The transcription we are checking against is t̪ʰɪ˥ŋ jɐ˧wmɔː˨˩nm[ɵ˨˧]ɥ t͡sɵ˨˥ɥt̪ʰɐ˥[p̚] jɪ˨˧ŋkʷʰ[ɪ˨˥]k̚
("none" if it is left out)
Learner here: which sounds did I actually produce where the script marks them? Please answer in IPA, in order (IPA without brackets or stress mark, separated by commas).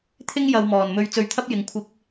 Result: ɵ˧, p̚, ɪ˧